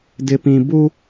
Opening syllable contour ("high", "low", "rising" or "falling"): low